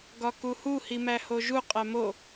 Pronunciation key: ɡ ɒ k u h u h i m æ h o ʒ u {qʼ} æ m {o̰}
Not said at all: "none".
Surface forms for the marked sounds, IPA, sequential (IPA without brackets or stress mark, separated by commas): qʼ, o